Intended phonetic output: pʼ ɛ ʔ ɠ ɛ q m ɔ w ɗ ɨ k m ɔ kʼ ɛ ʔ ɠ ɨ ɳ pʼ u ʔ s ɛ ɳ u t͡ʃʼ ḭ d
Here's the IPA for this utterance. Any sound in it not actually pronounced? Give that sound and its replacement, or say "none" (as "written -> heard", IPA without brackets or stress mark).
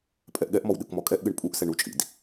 q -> ʔ